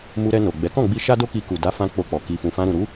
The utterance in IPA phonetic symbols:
mu˧ ɾɛ˧no˨ɡ͡bɛ˨˦ kɔ̃˦˨ɡ͡bi˧ ʃa˦do˦ki˧ku˨ da˨˦fã˧ k͡po˧k͡pɔ˨ ki˨fũ˨fã˧ ɾũ˨ɾu˨˦

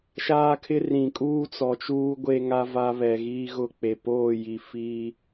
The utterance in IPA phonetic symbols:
ʃaː˦kʰɪ˦ rĩ˨kʼuː˦t͡sɔ˨t͡ʃuː˦ ɡʷe˦ŋa˦ va˦βɛ˨ɣiː˦ɣʊ˦ k͡pe˨poː˦˨ji˨ fiː˦

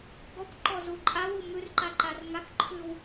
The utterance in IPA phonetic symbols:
ɡɔkʷ ǃɔzuǃʼawu mʉrǃa ǃarŋakǃʰʉw

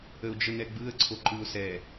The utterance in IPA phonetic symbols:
əʊ̯d͡ʒənɛɡ͡bɯə̯ ǀʰoǃɯʊ̯sɛ

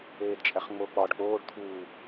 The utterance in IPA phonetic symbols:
eːdt͡ʃʼæχŋ͡mo k͡pɒɖ k͡poːɖ t̪ʰuː

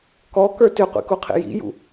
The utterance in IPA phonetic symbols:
kɔkə˞ tʏqʷḭkuqʰḭ jḭjṵ

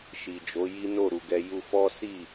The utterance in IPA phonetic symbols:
ʃi˨d͡ʒo˨˦ ji˦ no˦˨ɾu˨ɡɛ˧ ju˧fɔ˦si˦˨

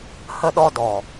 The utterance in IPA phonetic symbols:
hə˧ɗɔ˧dɔ˨

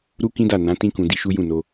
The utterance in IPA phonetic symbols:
ɾu˦kĩ˦da˦˨ nã˨˦tĩ˦kũ˧ di˧ʃu˦jũ˦˨no˧

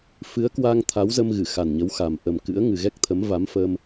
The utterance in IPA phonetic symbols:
fɨ˨˦ə̯kwa˧ŋ t̪ʰa˨˦wzə˧m ɣɨ˧˩xa˨˩nɲə˨˦w xa˨˩m ʔə˨˩m kɨ̰˧˥ə̯ ŋɨ˨˩ɣɛ˦˥k̚t̪ʰə˨˦m va˨˦mfə˧m

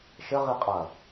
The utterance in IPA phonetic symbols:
ʃɘ ʁiqʼɐ

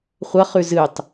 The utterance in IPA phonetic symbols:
χʷɐχʉ zɨtˤ

